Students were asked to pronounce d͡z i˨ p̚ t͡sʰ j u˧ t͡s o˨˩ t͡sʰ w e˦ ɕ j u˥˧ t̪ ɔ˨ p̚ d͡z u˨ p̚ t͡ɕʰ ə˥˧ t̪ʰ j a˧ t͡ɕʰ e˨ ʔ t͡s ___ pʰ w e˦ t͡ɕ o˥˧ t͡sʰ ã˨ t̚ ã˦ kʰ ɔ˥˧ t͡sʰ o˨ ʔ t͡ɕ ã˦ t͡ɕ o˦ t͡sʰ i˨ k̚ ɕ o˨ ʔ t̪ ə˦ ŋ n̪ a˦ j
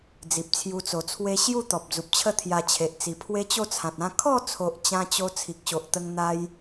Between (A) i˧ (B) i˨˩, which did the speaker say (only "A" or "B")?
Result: B